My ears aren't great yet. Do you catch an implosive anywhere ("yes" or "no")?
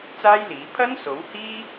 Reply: no